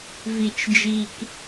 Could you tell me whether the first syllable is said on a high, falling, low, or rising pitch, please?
low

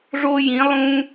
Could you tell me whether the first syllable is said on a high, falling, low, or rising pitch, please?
high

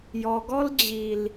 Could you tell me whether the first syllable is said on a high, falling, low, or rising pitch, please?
low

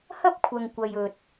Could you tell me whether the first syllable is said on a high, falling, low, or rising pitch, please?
high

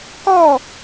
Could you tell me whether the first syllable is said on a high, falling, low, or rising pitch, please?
falling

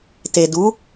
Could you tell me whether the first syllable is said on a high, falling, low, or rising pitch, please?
low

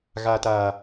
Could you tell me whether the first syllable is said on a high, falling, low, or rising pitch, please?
low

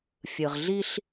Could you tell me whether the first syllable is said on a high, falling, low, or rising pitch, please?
low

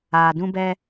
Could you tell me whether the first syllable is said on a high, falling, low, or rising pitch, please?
low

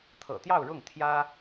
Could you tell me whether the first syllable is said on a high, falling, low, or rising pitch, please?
low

